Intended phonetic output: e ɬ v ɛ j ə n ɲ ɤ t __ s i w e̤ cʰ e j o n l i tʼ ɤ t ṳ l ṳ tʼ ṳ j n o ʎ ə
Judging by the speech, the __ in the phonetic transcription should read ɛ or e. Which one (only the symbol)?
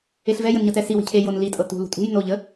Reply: ɛ